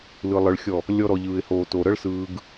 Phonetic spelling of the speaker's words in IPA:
l ɯ˧ lˠ ɯ˧ ɭ xʲ ɔ˦˨ | lʲ ɔ˧ ɾ ɔ˨ ʎ ɯː˨ ɪ̯ h oː˨ t o˨ ɾ ɤ˦ ɭ s ɯː˧ ɡ

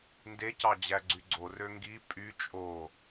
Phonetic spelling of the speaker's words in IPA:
n d e c ɑ d͡ʑ æ ɡ͡ǀ y ɡ͡ǀ o r ø ŋ ɡ i pʼ y t͡ʃʼ o

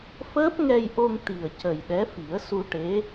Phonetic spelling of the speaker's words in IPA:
f əː˦˥ p̚ ŋ ɛ˧ j ʔ o˧ ŋ t̪ i˨˩ ə̯ c ə˨˩ j ɗ ɛ˧˥ f i˨˩˦ ə̯ s u˧ ʈ e˧˥

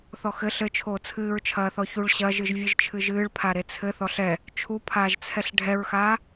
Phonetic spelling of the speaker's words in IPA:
θ ɔ x ɘ ɬ ɘ t͡ʃʰ oː t͡sʰ ɨː ɹ t͡ʃʰ ɐː θ ɔ ç u ɭ ɕ ɐ ʒ ɨ ʒ vʲ ɨ ʒ t͡ʃʰ ɨ ʒ ɨː ɭ pʰ a ɾ e t͡sʰ ɘ θ ɔ ɬ ɛ | t͡ʃʰ u pʰ aː ʒ t͡sʰ ɛ ɬ ɖʱ ɛ ɹ x aː

